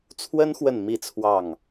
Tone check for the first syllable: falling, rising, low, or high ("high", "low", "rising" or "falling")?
high